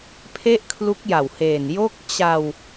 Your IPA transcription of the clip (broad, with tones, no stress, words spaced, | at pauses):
pʰe˥˩ʔkʰlu˦˥k̚ja˨˩wheː˨˩n jo˦˥k̚ t͡ɕa˧w